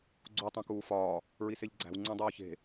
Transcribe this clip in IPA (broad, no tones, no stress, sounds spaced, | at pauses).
ɡ͡ǀ u tˤ õ k uː f ɒː | ɹ i s e ʎ ɡ͡ǀ æ̤ w ŋ͡ǀ ẽ dˤ oː ç e̤